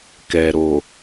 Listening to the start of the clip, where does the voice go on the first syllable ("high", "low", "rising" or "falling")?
low